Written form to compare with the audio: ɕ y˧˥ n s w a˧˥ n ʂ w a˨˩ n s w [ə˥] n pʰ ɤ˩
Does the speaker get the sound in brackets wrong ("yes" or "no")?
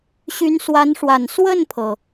yes